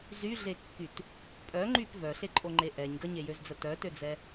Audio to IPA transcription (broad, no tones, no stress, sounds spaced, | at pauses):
z y ɮ e kː y t | pʼ œ ŋ͡ǃ y p v œ ɬ e ǃʼ o ŋ͡ǃ e ʔ ɛ ɲ ɡ ə ɲ e j ø z d͡z ə t œ t ø d͡z ɛ